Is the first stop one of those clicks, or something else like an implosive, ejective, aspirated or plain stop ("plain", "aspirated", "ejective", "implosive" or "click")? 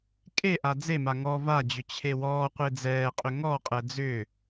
ejective